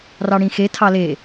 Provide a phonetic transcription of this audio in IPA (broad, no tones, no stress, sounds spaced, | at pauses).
r ɑ ɽ ĩ x e tʰ ɑ l e